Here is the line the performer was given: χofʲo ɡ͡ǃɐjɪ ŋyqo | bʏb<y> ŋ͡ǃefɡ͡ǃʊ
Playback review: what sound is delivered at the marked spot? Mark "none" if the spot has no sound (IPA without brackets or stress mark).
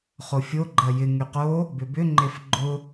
ʏ